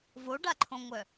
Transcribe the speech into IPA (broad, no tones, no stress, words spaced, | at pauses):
voɖaǃʰõŋʷœ